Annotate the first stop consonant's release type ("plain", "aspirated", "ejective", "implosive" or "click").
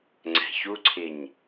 click